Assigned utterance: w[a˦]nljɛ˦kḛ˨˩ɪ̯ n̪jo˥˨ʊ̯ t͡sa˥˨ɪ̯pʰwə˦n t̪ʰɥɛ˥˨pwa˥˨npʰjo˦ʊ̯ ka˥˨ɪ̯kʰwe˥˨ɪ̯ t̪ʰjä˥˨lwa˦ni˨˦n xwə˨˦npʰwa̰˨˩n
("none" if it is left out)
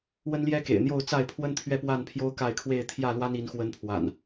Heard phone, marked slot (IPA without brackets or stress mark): ə˦